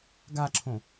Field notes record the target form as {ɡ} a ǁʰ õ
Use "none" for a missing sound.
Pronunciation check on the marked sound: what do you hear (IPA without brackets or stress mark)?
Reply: ɡ